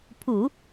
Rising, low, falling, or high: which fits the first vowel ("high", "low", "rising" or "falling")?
low